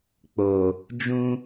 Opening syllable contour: low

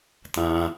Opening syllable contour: high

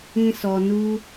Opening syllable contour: high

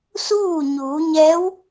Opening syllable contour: falling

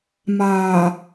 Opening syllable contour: low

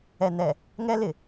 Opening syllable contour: low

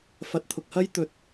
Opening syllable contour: low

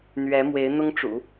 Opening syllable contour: rising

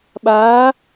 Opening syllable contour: rising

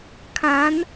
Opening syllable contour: rising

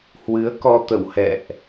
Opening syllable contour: rising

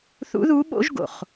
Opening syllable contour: rising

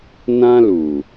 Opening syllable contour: high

